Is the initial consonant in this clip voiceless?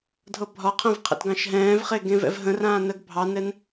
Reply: no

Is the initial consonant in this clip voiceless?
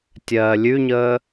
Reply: yes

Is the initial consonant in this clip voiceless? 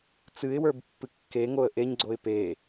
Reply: yes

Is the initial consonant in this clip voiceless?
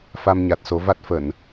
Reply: yes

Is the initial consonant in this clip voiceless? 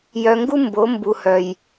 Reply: no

